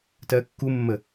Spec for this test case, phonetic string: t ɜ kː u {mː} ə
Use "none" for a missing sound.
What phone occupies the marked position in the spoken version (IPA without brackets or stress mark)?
mː